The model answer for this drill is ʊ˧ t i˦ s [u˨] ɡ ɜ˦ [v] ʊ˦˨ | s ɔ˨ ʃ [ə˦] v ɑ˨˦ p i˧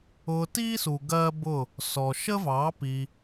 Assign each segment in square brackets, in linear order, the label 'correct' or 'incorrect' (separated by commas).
correct, incorrect, correct